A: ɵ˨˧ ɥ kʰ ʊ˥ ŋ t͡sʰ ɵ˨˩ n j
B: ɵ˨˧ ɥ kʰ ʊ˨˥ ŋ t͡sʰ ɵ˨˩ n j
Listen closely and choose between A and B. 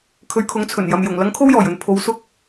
B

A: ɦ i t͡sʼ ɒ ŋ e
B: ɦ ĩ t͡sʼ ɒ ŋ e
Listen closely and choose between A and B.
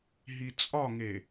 A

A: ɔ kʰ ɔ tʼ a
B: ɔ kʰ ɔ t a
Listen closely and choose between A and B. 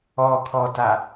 B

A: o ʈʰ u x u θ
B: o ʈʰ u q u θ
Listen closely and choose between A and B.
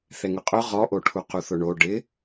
B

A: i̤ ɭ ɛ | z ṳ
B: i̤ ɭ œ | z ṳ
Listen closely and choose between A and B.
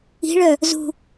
B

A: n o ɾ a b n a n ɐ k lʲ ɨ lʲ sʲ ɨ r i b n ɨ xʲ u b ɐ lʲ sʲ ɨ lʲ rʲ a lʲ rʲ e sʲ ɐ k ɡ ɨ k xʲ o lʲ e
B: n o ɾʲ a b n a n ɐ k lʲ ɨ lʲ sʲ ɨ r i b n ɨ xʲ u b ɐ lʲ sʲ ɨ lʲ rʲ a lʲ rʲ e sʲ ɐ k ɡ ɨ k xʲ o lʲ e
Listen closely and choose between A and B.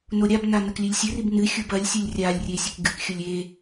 B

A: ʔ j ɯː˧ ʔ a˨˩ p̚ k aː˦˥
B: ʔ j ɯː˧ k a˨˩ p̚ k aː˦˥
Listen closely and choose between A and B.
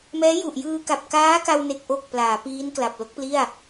B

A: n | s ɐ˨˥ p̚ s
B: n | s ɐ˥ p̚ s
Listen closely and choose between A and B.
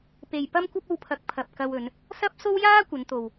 B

